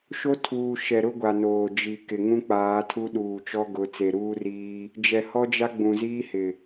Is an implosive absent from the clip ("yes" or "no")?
no